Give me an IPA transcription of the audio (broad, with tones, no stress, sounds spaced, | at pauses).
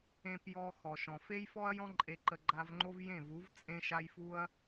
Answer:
ẽ˨ p j ɔ˨ x ɔ˨ ʃ ɔ̃˨ f e˦ j f ɔ˦ ɐ̯ j ɔ̃˦ ǃʼ e˧ ǃ ə˧ ɡ͡ǃ a˧ v ŋ͡ǃ o˦ v j ẽ˦˨ v u˨˦ v t͡sʼ ẽ˦ ʃ a˦ j f u˦ ɐ̯